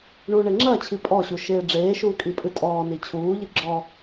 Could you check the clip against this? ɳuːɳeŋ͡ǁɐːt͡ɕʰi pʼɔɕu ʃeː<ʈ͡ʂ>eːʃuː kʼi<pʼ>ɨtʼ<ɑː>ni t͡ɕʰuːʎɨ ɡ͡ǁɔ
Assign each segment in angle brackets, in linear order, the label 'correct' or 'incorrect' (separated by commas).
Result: incorrect, correct, incorrect